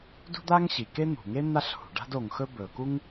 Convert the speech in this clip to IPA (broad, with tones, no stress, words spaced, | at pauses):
dṳ˥d̪a˥ŋɕi˩ ke˥n̪ṳ˩ŋe˥ n̪a˥ɬhṳ˩ ɖa̤˥do˩ŋxɵ˥ bɵ˩ku˥ŋ